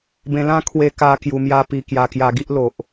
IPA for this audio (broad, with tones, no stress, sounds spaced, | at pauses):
b ẽ˧ l ã˦ kʰ w e˦ k a˦ k j u˧ m j a˦ p i˧ k j a˧ k j a˧ ɡ i˦ ʔ l o˨ ʔ